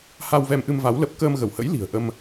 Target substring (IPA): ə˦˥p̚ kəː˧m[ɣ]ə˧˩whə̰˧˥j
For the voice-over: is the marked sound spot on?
yes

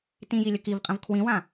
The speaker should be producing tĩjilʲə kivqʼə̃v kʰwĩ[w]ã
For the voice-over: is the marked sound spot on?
yes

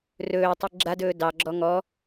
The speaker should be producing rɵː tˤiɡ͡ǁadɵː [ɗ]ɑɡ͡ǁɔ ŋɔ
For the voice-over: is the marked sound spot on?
no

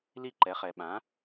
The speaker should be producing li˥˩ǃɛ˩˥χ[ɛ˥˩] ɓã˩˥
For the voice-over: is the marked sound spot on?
no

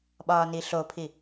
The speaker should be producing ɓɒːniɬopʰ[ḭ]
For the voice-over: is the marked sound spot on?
no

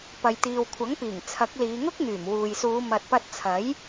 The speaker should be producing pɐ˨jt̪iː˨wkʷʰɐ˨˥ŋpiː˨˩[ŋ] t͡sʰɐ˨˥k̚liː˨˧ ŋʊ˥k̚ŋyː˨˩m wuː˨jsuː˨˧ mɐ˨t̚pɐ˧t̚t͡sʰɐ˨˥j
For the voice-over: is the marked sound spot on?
yes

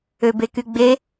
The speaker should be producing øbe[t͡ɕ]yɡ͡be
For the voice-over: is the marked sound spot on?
no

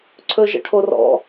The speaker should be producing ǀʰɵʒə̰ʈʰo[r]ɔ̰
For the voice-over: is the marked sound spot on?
yes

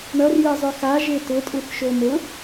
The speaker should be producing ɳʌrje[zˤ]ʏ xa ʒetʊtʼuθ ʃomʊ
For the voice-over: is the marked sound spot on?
yes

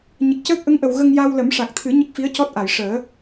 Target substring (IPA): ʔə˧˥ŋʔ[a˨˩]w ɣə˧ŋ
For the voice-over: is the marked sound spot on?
no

